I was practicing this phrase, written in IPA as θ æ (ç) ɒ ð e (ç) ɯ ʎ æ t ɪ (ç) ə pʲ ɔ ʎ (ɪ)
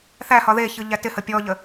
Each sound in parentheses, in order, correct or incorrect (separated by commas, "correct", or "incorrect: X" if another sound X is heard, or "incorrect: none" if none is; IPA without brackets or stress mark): incorrect: h, correct, incorrect: h, incorrect: ə